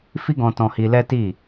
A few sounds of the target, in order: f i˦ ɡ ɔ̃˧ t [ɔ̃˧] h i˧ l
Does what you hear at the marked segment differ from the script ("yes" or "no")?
no